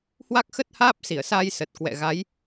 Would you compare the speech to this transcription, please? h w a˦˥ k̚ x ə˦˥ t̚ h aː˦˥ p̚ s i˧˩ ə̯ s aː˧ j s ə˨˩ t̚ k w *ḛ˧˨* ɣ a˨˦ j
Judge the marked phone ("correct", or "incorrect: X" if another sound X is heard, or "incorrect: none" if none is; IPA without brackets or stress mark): incorrect: ɛ̰˧˨